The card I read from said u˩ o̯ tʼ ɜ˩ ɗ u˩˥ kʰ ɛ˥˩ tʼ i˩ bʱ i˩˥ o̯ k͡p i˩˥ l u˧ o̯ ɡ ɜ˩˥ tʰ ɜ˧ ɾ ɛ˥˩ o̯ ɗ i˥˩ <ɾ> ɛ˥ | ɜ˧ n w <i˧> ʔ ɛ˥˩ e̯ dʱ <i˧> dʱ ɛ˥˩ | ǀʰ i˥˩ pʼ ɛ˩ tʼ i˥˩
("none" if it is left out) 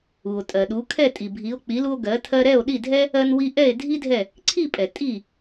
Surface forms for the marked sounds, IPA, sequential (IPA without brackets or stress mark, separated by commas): dʱ, i˧, i˥